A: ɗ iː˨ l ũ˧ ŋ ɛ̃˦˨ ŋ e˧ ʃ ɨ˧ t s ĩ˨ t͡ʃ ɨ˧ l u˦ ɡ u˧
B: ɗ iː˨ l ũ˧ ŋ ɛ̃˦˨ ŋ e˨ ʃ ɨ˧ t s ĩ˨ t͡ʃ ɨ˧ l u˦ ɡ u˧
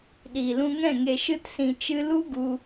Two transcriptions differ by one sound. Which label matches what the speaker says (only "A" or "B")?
B